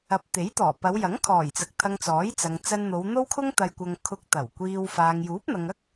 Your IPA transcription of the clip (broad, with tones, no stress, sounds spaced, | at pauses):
ɐ˨˥ p̚ t̪ e˨˥ j t̪ ɔː˨˩ p ɐ˨˧ w j ɐ˨˥ ŋ kʰ ɔː˨˩ j t͡s ɐ˨ k̚ t̪ʰ ɐ˧ ŋ t͡s ɔː˨˥ j t͡s ɐ˨ ŋ t͡s ɐ˧ n n̪ o˨˧ w n̪ o˥ w kʰ ʊ˥ ŋ t̪ ɐ˧ j kʷ ɐ˧ ŋ kʰ ʊ˧ k̚ t̪ ɐ˨˩ w kʷ iː˧ w f aː˨ ŋ j uː˨˥ p̚ n̪ ɐ˨ ŋ ɐ˥ k̚